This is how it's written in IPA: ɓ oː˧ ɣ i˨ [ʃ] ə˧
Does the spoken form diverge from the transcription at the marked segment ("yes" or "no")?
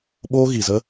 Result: yes